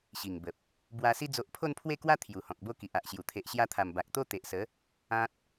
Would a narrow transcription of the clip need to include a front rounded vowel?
no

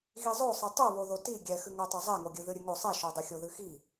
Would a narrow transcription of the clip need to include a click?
no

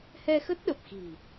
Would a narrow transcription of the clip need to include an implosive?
yes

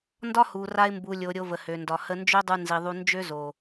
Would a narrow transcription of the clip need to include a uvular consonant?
no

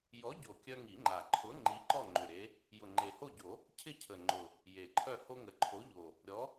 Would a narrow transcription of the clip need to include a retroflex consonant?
no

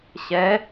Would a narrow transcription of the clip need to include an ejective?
no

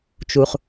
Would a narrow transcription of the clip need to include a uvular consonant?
yes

